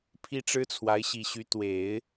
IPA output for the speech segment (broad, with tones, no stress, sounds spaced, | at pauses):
pʰ i˥ ʈ͡ʂ ɻ̩˥ t͡sʰ w a˧˥ ɪ̯ ɕ i˨˩ ɕ y˧˥ t̪ w e˨˩˦ ɪ̯